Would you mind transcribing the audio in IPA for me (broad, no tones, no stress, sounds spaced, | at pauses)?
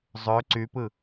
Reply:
zˤ ø ǀ y p ɯ